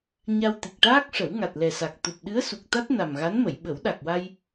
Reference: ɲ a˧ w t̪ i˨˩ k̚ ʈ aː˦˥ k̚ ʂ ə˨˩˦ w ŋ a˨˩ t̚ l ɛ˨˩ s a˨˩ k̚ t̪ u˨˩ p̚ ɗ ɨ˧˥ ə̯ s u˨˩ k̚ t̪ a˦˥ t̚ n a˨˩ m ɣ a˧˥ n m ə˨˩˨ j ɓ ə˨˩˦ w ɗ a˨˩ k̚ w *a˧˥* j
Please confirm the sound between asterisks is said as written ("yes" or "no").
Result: no